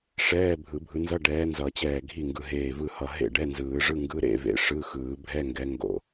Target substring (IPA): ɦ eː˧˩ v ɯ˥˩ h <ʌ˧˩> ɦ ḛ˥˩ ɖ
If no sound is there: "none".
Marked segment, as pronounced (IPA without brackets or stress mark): ʌ˧˩